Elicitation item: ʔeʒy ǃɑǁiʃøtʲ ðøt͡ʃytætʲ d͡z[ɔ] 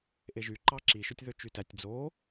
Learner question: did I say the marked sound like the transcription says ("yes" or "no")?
no